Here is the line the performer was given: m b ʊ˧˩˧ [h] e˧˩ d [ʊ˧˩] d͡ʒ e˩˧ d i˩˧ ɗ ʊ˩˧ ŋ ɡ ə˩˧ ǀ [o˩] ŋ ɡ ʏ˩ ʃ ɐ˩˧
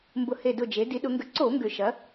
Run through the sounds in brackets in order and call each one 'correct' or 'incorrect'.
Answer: correct, correct, incorrect

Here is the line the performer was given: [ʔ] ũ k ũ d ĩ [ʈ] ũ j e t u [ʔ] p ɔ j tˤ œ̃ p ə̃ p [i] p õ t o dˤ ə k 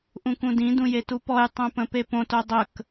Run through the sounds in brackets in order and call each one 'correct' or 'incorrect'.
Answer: correct, incorrect, incorrect, incorrect

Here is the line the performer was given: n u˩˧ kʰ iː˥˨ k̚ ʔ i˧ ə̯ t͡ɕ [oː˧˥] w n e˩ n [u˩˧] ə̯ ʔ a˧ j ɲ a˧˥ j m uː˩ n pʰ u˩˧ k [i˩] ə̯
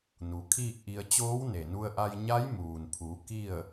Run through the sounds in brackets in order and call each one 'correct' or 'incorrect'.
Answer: correct, incorrect, incorrect

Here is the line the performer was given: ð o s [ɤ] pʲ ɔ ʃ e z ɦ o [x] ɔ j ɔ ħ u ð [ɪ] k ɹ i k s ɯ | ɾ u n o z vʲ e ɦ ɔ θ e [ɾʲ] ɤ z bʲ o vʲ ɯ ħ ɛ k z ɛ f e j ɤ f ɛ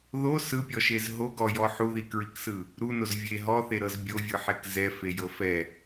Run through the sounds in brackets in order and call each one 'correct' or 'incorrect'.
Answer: incorrect, incorrect, incorrect, incorrect

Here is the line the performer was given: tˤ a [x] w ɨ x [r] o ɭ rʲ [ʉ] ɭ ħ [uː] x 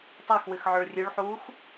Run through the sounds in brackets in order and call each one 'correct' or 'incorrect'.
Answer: correct, incorrect, correct, correct

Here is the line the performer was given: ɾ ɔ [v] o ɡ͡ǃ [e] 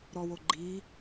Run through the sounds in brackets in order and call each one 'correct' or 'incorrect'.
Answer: incorrect, incorrect

